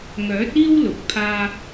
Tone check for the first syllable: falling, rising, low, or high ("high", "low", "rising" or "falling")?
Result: rising